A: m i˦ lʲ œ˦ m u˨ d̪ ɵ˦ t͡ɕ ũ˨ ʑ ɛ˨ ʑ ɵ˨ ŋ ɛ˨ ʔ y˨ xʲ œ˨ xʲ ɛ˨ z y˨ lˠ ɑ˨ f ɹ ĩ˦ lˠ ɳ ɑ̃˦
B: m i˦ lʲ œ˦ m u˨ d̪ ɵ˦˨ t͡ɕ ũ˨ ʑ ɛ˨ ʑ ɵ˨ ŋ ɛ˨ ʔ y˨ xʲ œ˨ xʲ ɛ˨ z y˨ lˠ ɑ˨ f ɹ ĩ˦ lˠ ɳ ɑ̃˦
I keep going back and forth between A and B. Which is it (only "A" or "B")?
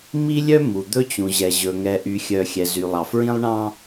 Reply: A